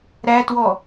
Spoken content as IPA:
ɾ æ t w ɔ

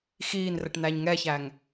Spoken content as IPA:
x iː n r ɘ ʈ n æ ɲ ŋ ɛ ç æ ŋ

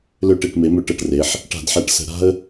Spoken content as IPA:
l ø˧˩ ʈ e˧˩ ʈ m e˩˧ m ø˧˩ ʈ ɤ˧˩ ʈ r e˩˧ ħ | ʈ a̤˧˩˧ d ħ æ˧˩˧ ʈ s ə̤˧˩˧ ɾ a̤˦ ə̯

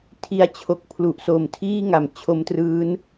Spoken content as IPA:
tʰ i˧ a̯ t͡ɕʰ o˨˩ k̚ pʰ l u˨˩ ʔ s o˨˩ m tʰ iː˥˩ ŋ a˩˦ m t͡ɕʰ o˦˥ m t r ɯː˦˥ n

